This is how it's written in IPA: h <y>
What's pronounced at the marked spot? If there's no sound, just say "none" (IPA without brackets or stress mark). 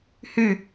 y